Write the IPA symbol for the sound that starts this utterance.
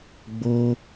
ɡ͡b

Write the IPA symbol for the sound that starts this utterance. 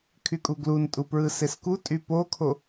kʰ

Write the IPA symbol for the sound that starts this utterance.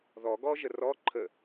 ð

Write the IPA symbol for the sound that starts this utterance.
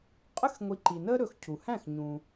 qʼ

